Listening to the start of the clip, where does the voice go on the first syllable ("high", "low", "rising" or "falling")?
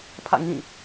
falling